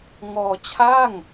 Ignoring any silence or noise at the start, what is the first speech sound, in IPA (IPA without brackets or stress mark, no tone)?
ŋ